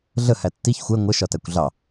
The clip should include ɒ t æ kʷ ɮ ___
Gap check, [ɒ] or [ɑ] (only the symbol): ɑ